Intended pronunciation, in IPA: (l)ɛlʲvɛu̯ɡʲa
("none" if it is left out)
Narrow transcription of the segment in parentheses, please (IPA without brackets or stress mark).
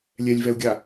lʲ